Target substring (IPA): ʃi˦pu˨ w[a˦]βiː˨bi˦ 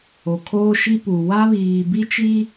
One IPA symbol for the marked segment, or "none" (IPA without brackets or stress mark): a˦